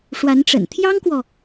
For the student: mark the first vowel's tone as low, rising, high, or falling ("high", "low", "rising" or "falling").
rising